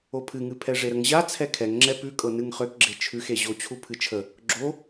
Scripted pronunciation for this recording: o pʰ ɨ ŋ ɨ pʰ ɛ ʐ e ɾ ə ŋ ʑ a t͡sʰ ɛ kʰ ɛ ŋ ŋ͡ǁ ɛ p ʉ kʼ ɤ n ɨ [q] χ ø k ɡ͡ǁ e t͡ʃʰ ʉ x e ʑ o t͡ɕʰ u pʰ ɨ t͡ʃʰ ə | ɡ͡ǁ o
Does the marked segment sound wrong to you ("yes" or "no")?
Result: yes